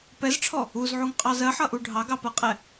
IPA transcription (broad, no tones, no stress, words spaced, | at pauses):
pɛzʈ͡ʂʰɔ | uzʕuŋqʼɑz ɜħʌʔu ɖʱɑɡɑpɜqʼɛ